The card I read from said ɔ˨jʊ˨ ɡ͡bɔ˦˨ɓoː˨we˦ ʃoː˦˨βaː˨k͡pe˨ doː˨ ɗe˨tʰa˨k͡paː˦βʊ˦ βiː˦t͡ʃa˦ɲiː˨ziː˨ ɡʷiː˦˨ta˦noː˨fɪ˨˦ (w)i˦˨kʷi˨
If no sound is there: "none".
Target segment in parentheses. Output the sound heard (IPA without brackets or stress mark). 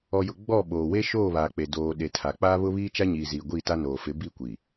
b